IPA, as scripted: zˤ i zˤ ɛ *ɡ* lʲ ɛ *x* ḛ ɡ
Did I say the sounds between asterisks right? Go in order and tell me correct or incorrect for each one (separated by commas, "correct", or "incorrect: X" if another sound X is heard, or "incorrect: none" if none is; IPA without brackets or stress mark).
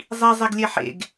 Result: correct, incorrect: ħ